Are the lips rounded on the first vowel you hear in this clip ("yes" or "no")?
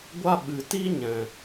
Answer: no